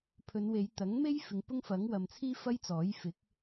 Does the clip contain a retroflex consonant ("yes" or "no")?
no